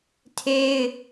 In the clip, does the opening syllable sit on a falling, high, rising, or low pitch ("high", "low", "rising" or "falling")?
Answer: high